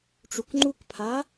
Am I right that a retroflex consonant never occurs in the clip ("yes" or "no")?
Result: no